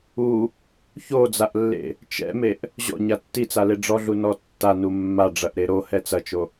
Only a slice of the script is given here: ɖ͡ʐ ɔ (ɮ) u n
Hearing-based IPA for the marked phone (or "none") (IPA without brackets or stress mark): ɮ